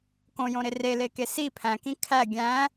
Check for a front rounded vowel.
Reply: absent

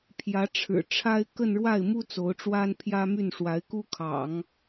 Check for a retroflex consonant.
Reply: present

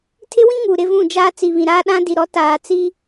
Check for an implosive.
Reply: present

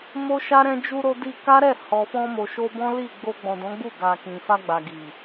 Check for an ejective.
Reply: absent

